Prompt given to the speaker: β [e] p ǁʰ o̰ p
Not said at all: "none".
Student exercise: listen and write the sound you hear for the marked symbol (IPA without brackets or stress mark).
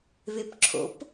e